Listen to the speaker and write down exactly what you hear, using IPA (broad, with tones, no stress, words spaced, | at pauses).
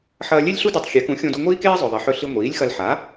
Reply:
ħɐː˧lʲe˥lʲɬu˥dɵ˧tˤ xʲe˩˥kũ˩˥xʲõ˧du˧ ŋʷiː˥keː˥ zˤɵ˩ðˤe˩ħɵ˧ɬi˧ ŋʷiː˩˥lʲxɐ˧lħa˩˥